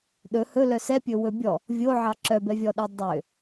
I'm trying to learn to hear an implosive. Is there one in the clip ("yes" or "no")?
yes